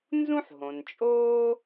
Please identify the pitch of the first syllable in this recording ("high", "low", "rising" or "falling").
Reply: high